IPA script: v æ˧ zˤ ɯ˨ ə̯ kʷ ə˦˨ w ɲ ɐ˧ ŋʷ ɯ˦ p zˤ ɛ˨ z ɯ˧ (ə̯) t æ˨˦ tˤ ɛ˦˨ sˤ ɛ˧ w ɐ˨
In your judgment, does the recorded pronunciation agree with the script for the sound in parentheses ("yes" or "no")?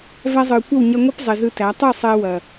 no